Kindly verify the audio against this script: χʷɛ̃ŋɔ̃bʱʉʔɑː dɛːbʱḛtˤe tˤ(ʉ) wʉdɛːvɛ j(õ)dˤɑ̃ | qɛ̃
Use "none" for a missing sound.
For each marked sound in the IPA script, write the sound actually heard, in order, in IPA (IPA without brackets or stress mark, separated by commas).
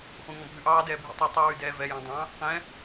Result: ɨ, ɔ̃